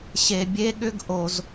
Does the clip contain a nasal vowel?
no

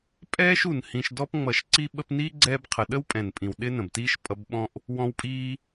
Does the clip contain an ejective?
yes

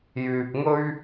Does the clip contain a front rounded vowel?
yes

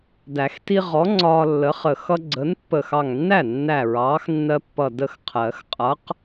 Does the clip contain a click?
yes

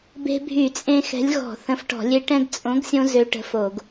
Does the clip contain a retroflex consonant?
yes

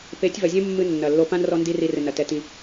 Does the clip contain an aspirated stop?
no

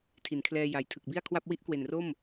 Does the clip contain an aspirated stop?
yes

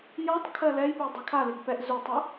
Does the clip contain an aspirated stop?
yes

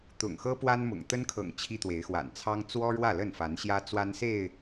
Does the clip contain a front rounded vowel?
no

